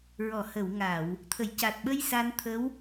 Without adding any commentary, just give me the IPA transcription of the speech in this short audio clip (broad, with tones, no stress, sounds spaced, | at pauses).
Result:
ɹ ɔ˨˩˨ h ə˨˩˨ w ŋ a˨˩˨ w | t̪ʰ ə˨˩˨ j c a˨˩ t̚ ɓ ə˧ j s a˧ n t̪ʰ ə˧˥ w